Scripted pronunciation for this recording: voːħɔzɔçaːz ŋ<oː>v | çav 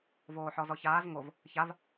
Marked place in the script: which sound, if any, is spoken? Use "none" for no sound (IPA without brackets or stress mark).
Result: o